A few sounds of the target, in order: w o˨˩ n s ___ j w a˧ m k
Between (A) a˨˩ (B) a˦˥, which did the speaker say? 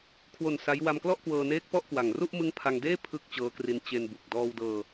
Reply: B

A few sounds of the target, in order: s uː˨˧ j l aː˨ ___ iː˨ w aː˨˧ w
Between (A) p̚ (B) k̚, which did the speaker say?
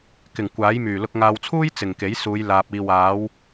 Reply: A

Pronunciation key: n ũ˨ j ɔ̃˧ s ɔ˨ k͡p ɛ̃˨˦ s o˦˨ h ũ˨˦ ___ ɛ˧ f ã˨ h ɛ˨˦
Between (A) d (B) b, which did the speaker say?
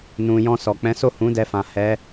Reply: A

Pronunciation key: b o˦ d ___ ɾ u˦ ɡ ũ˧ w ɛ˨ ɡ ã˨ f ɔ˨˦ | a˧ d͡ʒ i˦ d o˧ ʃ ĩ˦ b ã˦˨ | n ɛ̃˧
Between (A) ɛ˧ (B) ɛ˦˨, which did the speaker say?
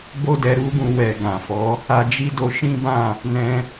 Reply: A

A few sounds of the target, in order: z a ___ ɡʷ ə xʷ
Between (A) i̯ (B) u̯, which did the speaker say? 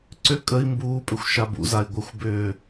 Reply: A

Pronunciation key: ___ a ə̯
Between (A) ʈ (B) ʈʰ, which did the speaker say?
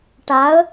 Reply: A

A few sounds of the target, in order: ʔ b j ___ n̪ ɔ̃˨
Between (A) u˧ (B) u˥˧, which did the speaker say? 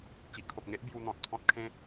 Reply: A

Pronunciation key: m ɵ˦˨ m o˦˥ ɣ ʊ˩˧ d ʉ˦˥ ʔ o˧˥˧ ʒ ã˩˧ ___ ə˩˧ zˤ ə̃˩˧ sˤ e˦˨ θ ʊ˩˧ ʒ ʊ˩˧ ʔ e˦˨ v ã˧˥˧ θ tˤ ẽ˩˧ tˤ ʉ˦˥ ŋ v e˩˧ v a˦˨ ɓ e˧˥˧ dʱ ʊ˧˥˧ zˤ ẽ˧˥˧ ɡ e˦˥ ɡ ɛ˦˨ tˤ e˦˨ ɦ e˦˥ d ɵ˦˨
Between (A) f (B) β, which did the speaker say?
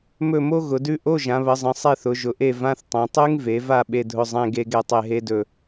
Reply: B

